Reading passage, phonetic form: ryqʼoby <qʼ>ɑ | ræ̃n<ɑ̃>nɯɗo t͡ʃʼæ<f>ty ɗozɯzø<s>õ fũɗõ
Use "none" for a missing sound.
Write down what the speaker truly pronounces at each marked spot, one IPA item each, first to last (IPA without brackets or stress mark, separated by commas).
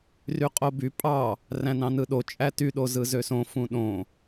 pʼ, ɑ̃, none, s